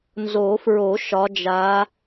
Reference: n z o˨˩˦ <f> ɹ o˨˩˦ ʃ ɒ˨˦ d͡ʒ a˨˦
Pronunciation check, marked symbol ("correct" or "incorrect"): correct